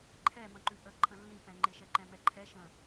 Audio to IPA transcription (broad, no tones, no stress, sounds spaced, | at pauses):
ǃʰ ɛ m ə̃ ǃ ʉ ʔ ə ǃʰ ə̃ lː ĩ p ɛ̃ ŋ͡ǃ e ʃ ɛ ǃ ɛ̃ m ɛ ǃʰ ɛ ʃ ə̃